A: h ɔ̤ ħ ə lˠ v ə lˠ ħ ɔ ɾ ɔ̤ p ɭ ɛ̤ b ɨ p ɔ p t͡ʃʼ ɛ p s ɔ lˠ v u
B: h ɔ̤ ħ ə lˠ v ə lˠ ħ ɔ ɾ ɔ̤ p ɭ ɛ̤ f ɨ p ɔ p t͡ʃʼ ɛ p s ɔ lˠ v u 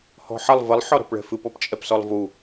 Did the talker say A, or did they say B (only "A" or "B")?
B